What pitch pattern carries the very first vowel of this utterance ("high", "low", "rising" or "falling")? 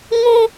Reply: high